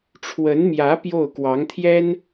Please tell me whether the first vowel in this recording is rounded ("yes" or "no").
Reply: no